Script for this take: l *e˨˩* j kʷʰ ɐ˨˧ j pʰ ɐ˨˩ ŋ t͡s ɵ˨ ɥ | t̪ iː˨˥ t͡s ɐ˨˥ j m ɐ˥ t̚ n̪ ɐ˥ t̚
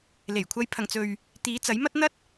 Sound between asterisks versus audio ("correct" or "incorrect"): correct